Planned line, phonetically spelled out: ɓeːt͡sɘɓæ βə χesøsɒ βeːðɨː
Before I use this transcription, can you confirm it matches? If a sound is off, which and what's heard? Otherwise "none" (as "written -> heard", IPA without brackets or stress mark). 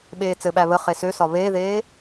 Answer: ɨː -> eː